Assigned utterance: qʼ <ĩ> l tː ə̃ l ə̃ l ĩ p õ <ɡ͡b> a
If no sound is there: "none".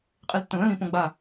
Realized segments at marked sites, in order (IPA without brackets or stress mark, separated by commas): i, ɡ͡b